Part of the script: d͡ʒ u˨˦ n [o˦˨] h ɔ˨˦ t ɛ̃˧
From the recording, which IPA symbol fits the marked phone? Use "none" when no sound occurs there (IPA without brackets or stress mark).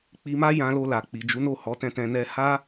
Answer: o˦˨